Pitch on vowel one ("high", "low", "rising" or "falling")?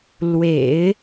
low